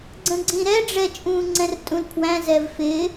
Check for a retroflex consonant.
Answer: present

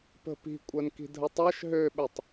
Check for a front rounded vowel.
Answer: present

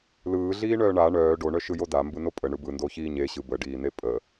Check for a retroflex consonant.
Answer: present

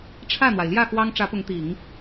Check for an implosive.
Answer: absent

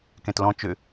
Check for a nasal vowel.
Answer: present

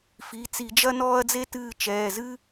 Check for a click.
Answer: absent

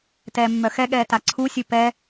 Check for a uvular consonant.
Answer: absent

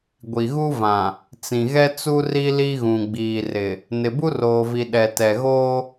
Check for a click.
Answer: absent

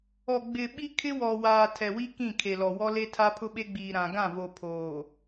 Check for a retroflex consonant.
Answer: absent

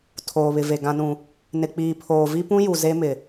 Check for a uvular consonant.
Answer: absent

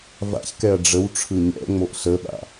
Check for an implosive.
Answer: present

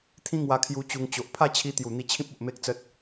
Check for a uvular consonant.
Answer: absent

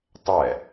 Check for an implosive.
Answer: absent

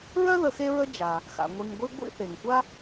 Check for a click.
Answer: absent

